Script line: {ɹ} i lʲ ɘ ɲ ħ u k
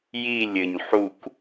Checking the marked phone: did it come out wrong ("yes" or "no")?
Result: yes